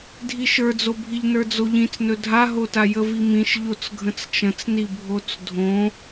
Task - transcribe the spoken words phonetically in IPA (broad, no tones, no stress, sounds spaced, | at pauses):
dʱ i ʃ ə˞ d͡z o bʱ i ʎ n ə˞ d͡z o ʎ ĩ t͡s n ɵ dʱ a ɦ o t a j ə v i m ĩ ʃ ʎ o t͡s ɡʱ ə̃ t͡s t͡ʃ ə̃ t͡s n i bʱ o t͡s dʱ õ